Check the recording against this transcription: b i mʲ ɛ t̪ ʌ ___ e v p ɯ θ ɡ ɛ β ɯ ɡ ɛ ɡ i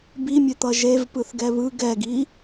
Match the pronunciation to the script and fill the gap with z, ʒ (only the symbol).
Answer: ʒ